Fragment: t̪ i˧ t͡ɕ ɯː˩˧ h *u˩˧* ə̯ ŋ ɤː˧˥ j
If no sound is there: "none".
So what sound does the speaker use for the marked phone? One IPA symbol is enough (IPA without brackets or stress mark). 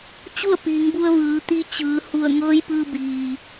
u˧˩